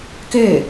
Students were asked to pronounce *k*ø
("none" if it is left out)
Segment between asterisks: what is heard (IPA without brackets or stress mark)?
k